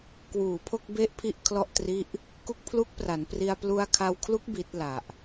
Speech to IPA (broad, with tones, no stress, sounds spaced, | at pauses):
k w uː˨˩ pʰ o˥˩ k̚ b e˥˩ ʔ pʰ i˥˩ ʔ kʰ l ɔ˥˩ ʔ t r i˦˥ ʔ | k u˦˥ k̚ pʰ l u˦˥ k̚ p r a˩˦ n p r i˧ a̯ p l u˧ a̯ kʰ a˧ w kʰ l u˦˥ k̚ b i˦˥ t̚ l a˨˩ ʔ